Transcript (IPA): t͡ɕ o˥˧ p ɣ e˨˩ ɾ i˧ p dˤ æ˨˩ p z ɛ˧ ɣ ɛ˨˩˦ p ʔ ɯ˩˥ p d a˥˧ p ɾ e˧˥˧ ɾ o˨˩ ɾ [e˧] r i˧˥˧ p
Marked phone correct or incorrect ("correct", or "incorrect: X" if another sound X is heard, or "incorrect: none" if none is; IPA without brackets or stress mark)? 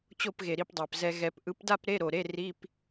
incorrect: e˧˥˧